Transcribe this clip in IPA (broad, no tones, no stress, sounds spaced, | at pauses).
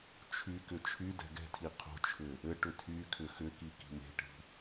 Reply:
t͡ʃʰ y k ʏ t͡ʃʰ y d ɛ̤ ɡ ɛ̤ tʰ i qʰ o̤ t͡ʃʰ ʏ | ɘ ʈ ʏ tʰ y kʰ ʏ x ʏ k i k i̤ m e̤ ʈ i̤